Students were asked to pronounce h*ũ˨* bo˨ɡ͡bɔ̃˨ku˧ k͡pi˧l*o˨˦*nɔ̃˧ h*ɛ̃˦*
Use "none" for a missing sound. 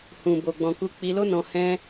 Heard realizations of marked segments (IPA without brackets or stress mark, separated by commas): ũ˨, o˦, ɛ̃˦